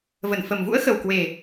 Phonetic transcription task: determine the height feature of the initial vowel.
mid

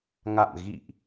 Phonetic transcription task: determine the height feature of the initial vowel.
low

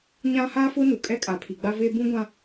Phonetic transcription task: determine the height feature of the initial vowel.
low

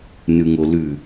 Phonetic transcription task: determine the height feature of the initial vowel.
high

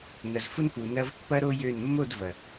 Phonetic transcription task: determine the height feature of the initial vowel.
low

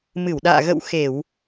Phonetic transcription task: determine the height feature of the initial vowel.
high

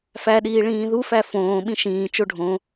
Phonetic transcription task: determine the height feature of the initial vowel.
low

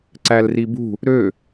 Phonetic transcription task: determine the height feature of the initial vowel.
low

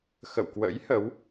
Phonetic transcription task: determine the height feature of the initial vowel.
mid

